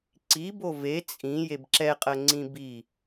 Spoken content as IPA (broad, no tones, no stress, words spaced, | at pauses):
ǀibo ve t͡sʼĩ jebǁɛqʼɜ ŋ͡ǀĩbi